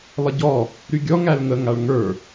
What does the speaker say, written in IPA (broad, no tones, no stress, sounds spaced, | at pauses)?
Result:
lˠ ə ɟ ɔ | ɾ y ɡʲ ɔ ŋ æ l ŋ ə ŋ a ɭ ŋ ə˞